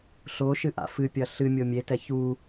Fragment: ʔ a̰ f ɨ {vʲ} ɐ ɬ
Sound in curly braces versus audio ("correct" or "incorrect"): incorrect